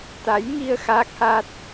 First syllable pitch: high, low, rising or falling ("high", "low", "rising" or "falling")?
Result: rising